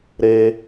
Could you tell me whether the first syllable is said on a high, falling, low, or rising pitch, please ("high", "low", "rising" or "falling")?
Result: high